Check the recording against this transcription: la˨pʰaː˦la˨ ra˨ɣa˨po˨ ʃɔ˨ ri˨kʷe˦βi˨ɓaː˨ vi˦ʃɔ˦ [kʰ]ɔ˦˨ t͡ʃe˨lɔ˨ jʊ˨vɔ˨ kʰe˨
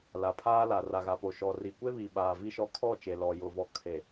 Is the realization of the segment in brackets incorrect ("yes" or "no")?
no